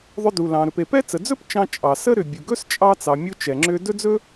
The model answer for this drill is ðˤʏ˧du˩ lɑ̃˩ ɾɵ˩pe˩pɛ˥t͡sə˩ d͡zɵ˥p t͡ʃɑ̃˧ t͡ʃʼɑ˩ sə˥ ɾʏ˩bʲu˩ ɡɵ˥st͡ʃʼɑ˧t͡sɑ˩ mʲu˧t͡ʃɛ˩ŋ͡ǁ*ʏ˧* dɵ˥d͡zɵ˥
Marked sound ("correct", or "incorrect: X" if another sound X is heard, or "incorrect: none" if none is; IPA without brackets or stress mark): correct